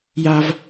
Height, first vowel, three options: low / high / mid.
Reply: low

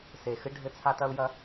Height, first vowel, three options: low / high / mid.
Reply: mid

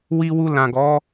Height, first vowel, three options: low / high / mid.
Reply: high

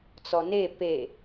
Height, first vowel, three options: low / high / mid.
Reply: mid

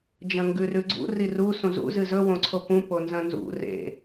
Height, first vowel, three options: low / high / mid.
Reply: low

